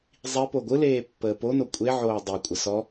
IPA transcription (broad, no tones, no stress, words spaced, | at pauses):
zˤi poɡʷɯleː pːəːpono kʷʼeʕoː dˤikʷʼə sɔ